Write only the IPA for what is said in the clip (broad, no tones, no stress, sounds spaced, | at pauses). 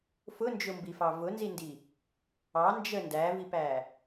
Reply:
f ʊ n d͡ʒ ʊ m b i f ɑ v ʊ n z i n d i | ɑ n d͡ʒ ə n d æ v i p æ